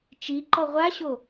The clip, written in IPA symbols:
t͡ʃi ǃɔʁʷaɕo

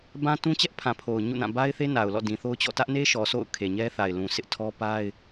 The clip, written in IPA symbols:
bã˦tũ˦t͡ɕɛ˦ʔpʰã˨ pʰo˨ʊ̯ ɲṵ˦˨nã˦˨ ba˦ɪ̯θe˦na˨ʊ̯ lɔ̰˦˨dĩ˨θo˦ʊ̯t͡ɕɔ̰˦˨ tä˦ʔne˦ʃɔ˨ sʰo̰˦˨ʊ̯ kʰe˨ɲɛ˦θa˨ɪ̯ lũ˨sʰɪ˦ʔtʰɔ˦ pa˦ɪ̯

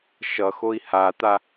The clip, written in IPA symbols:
ʃʌxoi̯ hat̪a

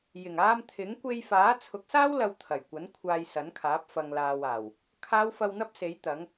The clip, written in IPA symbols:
jɪ˨˩ŋaː˧mt̪ʰɪ˨˥ŋ kʷe˧jfaː˨˥t͡sʰʊ˨˥k̚saː˥w lɐ˧wt̪ʰɐ˨˩jkʷɐ˨˥n kʷʰaː˧jsɐ˨˥nkʰaː˨˥p̚ fɐ˨ŋlaː˨waː˨˩w | kʰaː˨˧wfɐ˨wn̪ɐ˧p̚ se˨˥jt̪ɐ˨˥ŋ

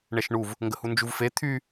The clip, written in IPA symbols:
ɳɛʃɳuv | ŋɡəhund͡ʒuvfe t̪ʰy

